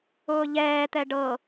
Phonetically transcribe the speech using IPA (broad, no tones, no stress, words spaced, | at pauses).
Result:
ʊːʎɛːt̪ɛ ɖɤ